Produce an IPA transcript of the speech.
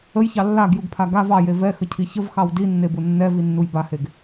ə j ç ɑ lː a ɡ j u ɡ pʰ a ɡ a v ɑ j e v ɛ x ə cʰ i ç ə v x ɑ w d i nː e b u nː ɛ v i nː u j b a h e ɡ

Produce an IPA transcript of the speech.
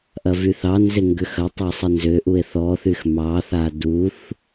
ʔ ɐ v y θ ɑ n z e ŋ ɡ ʏ x ɐ tˤ a sˤ ə n z ʏ ʔ u e̯ θ ɔ θ y x m ɑ θ a d u θ

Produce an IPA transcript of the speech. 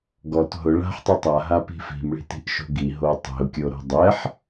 ɡ ɔ t ɦ ʊ ɭ a̤ ħ tˤ o tˤ a ɦ a p i̤ f i̤ m ɭ i̤ t i̤ ʔ ʃ o̤ ɡ i ɦ o tˤ i̤ ʊ̯ kʲ o ɾ o̤ dˤ ɛ ħ

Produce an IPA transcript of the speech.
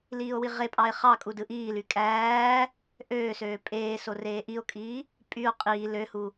l iː o̯ w i ʁ e pʼ ɑ e̯ χ ɑ kʼ u d ɯ ʔ iː l y kʼ æː | ʔ øː s øː pʼ eː s o r eː ʔ i o̯ kʼ iː | pʼ y o̯ qʼ iː l ø h u

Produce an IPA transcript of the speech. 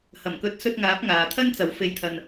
h ɐ˨˩ m k ɵ˨˥ t̚ s ɵ˧ t̚ ŋ aː˨˥ p̚ ŋ aː˨ t̪ʰ ɐ˥ n t͡s ɐ˨˥ w f e˧ j t̪ʰ ɐ˧ n

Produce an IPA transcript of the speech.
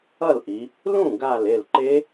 ʌ˥˩ l ʔ i˩˧ | l ũ˥˩ ɡ a˧˩ l e˧˩ l ǃ e˦˥

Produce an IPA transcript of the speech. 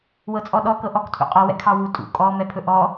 w ɤ t͡sʼ ɔ ɗ ɔ k ɤ ʔ ɔ k tʰ ṵ qʼ ɔ w ɛ̰ kʰ ɑ w u tʼ ṵ kʼ ɔ m ɛ pʰ ɵ ʔ ɔ

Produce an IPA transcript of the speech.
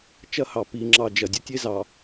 t͡ʃ ɐ˦ h ɑ˨ p i˨ ŋ͡ǁ ɑ˨ d͡ʒ ɐ˨ dʲ ə˦ tʲ e˦ z ɑ˨

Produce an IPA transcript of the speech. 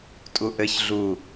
tʼ u ʔ ɘ ç ɮ u

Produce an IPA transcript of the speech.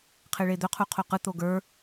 qʰ e ɭ e d̪ ɵ qʰ u qʰ o q ɯ t̪ o ɡ ə˞

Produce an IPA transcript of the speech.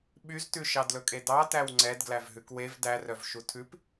ɓ y z t ʉ ʃ ɑ d l ɵ kʼ e d ɑ t æ w ŋ͡ǀ ɛ d ɡ l æ v ɦ ʉ k w e v d æ r œ v ʃ u tʰ ʉ p

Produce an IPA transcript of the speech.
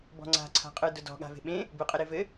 b ɔ̤ ŋ͡ǀ a̤ ǀʰ a̤ qʼ ɯ d ʊ d ɔ̤ ɠ a̤ v e̤ ɓ ẽ | b ɯ qʼ ɘ ɾ e v ɘ

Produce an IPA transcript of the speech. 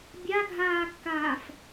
bʲ a ɡʱ aː kː aː f

